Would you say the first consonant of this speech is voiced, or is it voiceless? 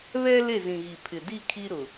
voiced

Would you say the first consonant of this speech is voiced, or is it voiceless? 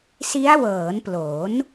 voiceless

